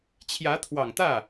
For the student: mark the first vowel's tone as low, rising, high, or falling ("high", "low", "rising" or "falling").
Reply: rising